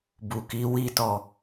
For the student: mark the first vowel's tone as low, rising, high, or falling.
low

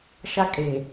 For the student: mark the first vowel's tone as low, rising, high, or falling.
high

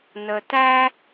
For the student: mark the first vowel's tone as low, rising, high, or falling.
low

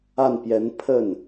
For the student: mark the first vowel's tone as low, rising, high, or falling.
falling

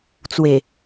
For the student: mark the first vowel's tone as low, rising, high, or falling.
low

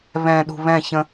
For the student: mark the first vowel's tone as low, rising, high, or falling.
low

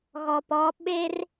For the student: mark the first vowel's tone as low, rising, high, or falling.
low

